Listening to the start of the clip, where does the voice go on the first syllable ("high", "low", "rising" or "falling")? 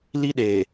high